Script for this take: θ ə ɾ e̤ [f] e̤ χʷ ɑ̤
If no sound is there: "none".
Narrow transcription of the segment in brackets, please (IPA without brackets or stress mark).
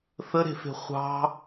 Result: f